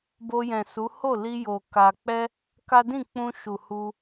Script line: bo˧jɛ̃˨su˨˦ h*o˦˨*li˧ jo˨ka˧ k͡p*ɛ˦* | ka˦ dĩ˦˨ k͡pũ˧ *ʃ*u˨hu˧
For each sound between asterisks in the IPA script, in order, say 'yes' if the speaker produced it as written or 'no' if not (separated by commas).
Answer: yes, yes, yes